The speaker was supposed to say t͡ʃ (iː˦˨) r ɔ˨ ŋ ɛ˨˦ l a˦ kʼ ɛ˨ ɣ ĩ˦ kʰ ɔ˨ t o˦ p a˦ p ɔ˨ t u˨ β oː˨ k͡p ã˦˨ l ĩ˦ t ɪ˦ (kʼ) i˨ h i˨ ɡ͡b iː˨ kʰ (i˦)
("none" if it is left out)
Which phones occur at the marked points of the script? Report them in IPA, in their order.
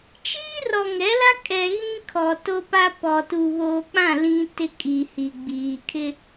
iː˦, kʼ, ɪ˦

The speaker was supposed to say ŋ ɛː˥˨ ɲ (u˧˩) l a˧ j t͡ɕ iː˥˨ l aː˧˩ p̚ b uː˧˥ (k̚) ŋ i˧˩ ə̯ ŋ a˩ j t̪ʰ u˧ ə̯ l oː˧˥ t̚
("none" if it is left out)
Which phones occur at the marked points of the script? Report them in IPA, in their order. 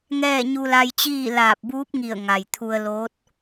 u˧, p̚

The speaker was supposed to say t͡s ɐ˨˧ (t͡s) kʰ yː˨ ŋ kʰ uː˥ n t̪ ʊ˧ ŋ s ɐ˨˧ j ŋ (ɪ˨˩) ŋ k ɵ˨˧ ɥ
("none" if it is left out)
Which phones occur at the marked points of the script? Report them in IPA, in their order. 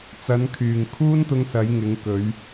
n, ɪ˨˧

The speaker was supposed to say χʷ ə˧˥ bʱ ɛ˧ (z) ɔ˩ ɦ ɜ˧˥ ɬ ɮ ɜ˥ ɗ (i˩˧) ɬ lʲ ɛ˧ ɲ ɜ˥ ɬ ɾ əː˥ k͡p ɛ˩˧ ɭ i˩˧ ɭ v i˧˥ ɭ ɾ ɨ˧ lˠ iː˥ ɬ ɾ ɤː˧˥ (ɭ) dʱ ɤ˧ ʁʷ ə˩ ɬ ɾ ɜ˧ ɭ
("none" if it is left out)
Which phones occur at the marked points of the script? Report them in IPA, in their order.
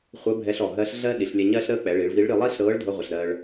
ɬ, i˩˧, ɭ

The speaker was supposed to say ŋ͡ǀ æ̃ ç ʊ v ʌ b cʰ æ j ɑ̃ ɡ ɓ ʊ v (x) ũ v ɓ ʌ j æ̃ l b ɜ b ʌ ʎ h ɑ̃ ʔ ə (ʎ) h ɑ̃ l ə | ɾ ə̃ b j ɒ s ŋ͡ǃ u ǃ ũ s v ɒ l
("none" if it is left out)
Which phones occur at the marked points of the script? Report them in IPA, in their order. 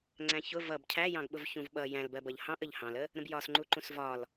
ç, ʎ

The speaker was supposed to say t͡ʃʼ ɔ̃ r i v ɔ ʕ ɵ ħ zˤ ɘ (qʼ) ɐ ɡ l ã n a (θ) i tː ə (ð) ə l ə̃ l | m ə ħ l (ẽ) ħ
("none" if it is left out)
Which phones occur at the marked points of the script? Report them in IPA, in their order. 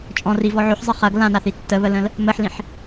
χ, θ, β, ĩ

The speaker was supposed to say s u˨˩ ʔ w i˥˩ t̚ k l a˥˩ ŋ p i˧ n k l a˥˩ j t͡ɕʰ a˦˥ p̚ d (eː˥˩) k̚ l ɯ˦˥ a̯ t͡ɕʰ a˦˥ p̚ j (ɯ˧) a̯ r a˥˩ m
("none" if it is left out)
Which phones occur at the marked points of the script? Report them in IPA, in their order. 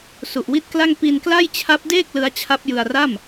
eː˥˩, ɯ˧

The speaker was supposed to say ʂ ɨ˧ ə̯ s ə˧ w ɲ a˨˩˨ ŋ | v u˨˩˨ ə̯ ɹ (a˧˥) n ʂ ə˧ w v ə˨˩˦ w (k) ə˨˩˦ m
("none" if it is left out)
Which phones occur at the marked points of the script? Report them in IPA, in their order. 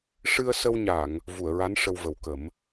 a˧˥, k

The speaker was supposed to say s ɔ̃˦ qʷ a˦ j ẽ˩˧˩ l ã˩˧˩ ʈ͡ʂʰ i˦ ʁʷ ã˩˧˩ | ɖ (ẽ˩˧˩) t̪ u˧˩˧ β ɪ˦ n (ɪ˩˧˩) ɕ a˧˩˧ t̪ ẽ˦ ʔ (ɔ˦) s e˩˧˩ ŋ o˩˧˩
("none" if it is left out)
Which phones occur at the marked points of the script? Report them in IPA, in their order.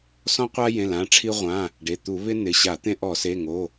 e˩˧˩, ɪ˩˧˩, ɔ˧˩˧

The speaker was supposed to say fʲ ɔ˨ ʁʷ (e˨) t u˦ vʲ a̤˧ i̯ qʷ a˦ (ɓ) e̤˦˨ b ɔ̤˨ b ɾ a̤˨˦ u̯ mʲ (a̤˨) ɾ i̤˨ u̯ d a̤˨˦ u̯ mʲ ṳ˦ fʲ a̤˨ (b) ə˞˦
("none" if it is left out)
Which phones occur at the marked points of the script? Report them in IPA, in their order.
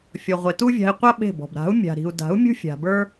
e˨, ɓ, a̤˨, b

